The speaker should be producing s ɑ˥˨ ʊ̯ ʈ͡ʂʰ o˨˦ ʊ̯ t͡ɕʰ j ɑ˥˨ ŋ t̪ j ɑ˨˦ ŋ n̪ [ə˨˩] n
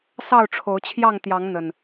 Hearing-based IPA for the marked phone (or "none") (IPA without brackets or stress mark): ə˨˩